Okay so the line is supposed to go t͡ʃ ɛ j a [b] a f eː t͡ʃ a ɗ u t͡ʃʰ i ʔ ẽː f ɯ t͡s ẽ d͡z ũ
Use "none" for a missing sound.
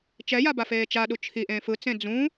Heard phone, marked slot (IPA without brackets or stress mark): b